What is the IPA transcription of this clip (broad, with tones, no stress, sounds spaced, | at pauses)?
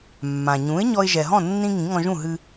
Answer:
mː ã˩ ɲ ũ˩˥ ɪ̯ ɲ ɔ˧ ɪ̯ ʒ ɛ˩ ɦ ɔ̃˥˩ nː ĩ˧ ŋ ĩ˩˥ ŋ ɔ̃˧ ʒ ũ˥˩ ɦ ɨ˧